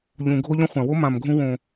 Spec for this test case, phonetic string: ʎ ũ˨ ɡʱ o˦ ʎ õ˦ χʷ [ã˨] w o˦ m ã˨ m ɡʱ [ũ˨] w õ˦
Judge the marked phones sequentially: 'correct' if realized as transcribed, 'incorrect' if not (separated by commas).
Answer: correct, incorrect